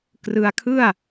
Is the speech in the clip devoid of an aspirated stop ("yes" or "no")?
no